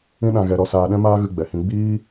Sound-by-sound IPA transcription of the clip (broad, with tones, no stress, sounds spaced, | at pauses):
ĩ˦ ɗ ã˧ ɣ ɛ˧ ɾ ɔ˧ s aː˧ ɗ ɛ̃˦ m aː˦ ɣ ɨ˧ ɡ͡b ɛ˨ h ĩ˧ ɡ͡b iː˦